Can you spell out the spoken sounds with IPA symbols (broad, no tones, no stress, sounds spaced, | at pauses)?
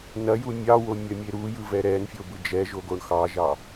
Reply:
n ɐ j u mʲ ɑ w o mʲ ɐ mʲ e ɾ u j ɯ v ɛ ɾ ɛ n fʲ o b ɯ d͡ʒ ɛ ʒ o ɡ o ɳ x ɑ ʒ ɑ